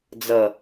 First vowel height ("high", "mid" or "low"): mid